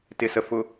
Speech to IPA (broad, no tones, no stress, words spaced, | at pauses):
tɪsəfʊ